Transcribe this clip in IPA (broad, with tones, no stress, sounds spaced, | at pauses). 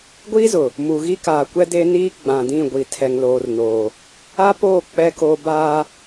ɡʷ iː˦ z ʊ˨ | m u˨ ɣ i˦ k aː˨ kʷ ɛ˦ d e˦ n iː˦ ɡ͡b ã˨ d ĩ˦˨ ɡʷ i˨ tʰ ɛ˨ ŋ l oː˨ r n oː˨ | a˦ p oː˦˨ k͡p ɛ˦ k o˦ b aː˦